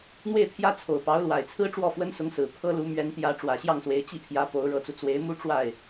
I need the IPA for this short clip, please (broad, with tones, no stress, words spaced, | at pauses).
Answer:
n̪we˥˩ɪ̯t̪ʰjä˥t͡sʰo˨˩ʊ̯ pɑ˧˥ʊ̯lwa˨˩ɪ̯t͡sʰɹ̩˥ ʈ͡ʂwɔ˥˩fwə˥nsʊ˧˥ŋsɹ̩˨˩ t̪ʰɤ˥lu˧˥ mɥɛ˧˥nt̪jä˧˥ ʈ͡ʂwä˨˩ɕjɑ˥˩ŋswe˧˥ɪ̯ t͡ɕi˥˩pʰjä˧˥ po˧˥ʊ̯ɻɤ˧˥t͡su˧ t͡swe˧˥ɪ̯mu˥ ʈ͡ʂwa˥˩ɪ̯